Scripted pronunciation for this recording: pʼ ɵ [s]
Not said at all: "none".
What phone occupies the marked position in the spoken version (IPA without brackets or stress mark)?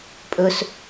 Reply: s